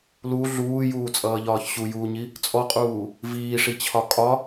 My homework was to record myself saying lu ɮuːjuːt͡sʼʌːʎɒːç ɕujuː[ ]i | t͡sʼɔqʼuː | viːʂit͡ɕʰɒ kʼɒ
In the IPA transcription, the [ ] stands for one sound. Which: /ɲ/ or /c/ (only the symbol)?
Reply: ɲ